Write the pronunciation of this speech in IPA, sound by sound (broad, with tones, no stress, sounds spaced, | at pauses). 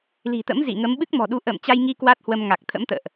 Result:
l i̤˨˩ t̪ ə̰˧˥ m z ḭ˧˨ ŋ ə˨˦ m ɓ ɨ˦˥ k̚ m ɔ̤˨˩ ɗ u˨˦ ʔ ə̰ː˧˨ m t͡ɕ a˧ j ŋ i˧ k w a˦˥ t̚ h w ə˧ m ŋ a˨˩ k̚ t̪ʰ ə̰˧˥ m t̪ ə̰ː˧˨ ʔ